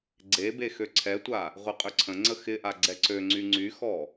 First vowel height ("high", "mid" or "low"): mid